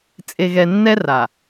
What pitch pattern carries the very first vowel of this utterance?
low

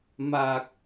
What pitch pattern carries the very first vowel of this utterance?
low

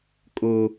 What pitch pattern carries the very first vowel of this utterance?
high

